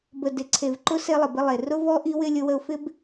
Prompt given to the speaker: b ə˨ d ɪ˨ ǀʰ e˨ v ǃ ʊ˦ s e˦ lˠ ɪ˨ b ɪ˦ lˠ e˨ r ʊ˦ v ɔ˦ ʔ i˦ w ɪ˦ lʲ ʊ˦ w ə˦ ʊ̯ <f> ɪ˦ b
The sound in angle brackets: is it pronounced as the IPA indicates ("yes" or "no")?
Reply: yes